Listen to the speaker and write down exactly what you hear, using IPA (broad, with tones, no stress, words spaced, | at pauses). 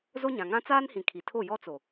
zo˦ɲã˨ŋã˦ t͡saː˦nhĩ˨ kʰi˨ tʰo˦˨ jɔ˦t͡so˨